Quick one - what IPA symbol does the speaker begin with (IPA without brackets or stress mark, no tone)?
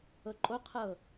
ɤ